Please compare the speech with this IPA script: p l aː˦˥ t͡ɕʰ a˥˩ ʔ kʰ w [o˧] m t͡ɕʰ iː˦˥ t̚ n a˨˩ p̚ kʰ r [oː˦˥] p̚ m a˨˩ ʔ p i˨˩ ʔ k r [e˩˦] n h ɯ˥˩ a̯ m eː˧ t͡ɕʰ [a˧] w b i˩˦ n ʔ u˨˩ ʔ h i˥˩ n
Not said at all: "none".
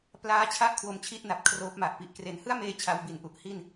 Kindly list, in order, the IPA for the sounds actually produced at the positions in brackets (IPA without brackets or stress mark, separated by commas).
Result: o˧, oː˦˥, e˩˦, a˧